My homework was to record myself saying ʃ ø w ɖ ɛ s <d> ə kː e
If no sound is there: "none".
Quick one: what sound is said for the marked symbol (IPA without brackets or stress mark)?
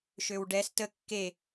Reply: t